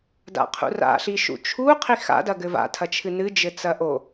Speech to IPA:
d a̰ qʰ ṵ r a̰ ɬ i ʃ ṵ t͡ʃʰ u qʰ i x a̰ d ɐ ɡ ɘ v a̰ tʰ ɐ t͡ʃʰ ɨ n ɨ d͡ʒ ɘ t͡s ɐ ʔ o

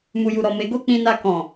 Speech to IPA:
m u˨ j u˨ ɾ ɔ˨ m e˨˦ ɡ o˦ k͡p ĩ˧ n a˧ k ɔ̃˨

